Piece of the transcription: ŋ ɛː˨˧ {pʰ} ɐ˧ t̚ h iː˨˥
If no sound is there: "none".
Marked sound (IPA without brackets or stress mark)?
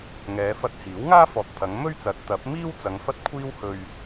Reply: f